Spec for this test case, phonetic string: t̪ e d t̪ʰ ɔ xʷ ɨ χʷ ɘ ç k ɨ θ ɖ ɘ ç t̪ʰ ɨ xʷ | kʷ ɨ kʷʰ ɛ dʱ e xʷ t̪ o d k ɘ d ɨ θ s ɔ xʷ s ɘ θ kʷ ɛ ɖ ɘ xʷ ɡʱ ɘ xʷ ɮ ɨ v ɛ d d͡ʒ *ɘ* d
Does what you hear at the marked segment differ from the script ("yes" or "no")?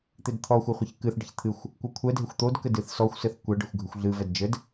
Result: no